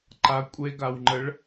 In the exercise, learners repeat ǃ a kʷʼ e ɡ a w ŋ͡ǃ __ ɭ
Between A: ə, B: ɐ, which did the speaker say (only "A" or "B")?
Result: A